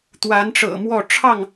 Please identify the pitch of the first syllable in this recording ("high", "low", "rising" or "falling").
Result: rising